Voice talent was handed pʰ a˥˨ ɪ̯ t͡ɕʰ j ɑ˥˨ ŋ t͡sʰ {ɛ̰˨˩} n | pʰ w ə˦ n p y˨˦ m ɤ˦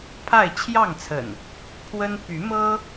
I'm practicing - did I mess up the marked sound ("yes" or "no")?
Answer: yes